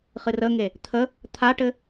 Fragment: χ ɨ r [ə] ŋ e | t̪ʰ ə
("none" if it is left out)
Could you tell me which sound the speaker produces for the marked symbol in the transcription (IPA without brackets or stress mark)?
ə